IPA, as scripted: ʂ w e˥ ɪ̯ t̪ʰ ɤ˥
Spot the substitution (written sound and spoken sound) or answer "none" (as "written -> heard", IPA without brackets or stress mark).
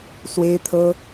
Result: ʂ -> s